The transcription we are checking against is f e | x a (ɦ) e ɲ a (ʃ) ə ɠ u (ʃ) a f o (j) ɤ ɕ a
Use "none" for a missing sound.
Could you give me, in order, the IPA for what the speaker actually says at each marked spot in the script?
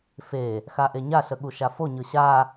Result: ʔ, ɬ, ʃ, ɲ

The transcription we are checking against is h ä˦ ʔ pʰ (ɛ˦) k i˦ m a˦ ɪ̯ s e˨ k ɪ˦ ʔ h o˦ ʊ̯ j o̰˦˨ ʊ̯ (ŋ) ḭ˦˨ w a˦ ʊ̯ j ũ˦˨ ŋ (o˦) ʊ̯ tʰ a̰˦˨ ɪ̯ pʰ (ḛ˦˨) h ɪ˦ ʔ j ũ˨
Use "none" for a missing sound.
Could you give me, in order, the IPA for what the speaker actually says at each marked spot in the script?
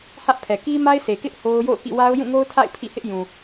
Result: ɛ˨, k, o˦, ḭ˦˨

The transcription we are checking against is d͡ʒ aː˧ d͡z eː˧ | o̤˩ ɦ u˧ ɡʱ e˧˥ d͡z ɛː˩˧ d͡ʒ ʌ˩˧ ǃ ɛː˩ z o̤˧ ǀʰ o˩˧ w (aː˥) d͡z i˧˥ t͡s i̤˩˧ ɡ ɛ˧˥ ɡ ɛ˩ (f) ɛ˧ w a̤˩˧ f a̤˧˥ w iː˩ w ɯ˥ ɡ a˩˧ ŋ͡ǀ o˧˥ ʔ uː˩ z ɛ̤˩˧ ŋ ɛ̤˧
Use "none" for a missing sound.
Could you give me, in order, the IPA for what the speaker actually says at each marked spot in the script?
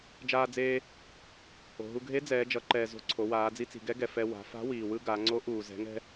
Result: aː˩˧, f

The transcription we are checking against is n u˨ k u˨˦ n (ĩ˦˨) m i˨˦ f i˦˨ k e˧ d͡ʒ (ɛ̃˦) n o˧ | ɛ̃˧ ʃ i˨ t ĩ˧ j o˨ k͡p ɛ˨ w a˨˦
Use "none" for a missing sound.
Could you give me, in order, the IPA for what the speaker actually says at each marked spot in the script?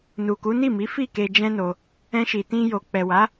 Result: i˦˨, ɛ̃˦

